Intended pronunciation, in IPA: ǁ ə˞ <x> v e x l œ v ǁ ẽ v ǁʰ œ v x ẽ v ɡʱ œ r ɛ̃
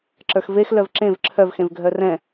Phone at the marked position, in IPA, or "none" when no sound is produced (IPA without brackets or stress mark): x